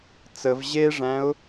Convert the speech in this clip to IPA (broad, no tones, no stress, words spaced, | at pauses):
t͡səv ʑeʐæ̃ʊ̯